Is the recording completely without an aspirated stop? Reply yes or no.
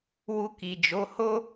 yes